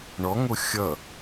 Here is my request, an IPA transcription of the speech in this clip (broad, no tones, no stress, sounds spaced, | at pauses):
ɳ ɔ ŋ o xʲ ʌ